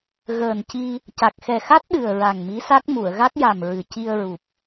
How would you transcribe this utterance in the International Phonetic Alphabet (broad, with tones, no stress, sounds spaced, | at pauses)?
ɣ əː˨˩ n c i˧ | c a˨˩ k̚ x ɛ˨˩ x a˦˥ t̚ ɗ ɨ˨˩ ə̯ ɹ a˨˩ ŋ m i˧˥ s a˦˥ k̚ m u˨˩˨ ə̯ ɣ a˦˥ k̚ j a˨˩ m ɹ ɨ˨˩ c i˧ ə̯ ɹ u˨˩ p̚